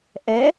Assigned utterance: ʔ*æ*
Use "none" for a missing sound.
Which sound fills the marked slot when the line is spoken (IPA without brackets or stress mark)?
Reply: ɛ